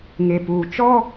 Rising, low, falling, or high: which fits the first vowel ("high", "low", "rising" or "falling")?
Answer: low